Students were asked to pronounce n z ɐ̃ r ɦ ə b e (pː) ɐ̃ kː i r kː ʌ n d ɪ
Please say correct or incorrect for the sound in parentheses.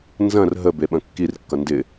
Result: incorrect